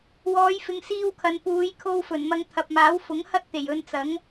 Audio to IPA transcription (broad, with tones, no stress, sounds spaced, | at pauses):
w ɔː˨˧ j f ɪ˨ ŋ s iː˧ w kʰ ɐ˨ n p uː˨˧ j kʰ o˧ w f ɵ˨˩ n m ɐ˧ ŋ t̪ʰ ɐ˨ p̚ m aː˨˥ w f ʊ˨˥ ŋ h ɐ˥ t̚ t̪ e˨˩ j ɵ˧ n t͡s ɐ˨˥ ŋ